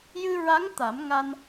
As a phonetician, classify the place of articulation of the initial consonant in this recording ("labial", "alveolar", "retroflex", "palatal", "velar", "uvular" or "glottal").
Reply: palatal